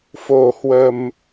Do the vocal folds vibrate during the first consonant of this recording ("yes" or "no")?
no